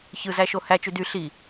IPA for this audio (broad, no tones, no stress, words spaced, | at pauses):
çɯzæ ʃohæt͡ʃy dy ɬi